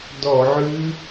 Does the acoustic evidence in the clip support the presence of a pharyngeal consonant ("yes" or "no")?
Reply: yes